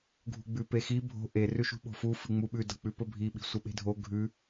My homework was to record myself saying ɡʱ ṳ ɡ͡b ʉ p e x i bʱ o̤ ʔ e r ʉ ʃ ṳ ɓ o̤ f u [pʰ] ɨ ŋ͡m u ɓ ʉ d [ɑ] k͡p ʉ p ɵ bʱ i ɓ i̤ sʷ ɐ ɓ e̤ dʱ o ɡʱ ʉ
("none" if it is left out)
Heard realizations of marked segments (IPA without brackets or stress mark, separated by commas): f, ɐ